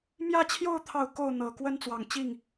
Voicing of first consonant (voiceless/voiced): voiced